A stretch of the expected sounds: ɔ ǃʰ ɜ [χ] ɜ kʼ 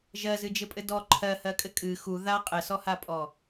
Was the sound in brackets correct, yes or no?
no